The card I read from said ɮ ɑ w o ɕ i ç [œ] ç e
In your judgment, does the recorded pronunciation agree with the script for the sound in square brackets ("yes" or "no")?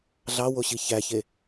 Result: no